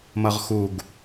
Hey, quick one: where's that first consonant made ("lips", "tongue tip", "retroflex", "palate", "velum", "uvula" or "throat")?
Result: lips